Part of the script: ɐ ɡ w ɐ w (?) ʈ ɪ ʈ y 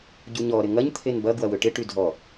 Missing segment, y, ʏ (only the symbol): ʏ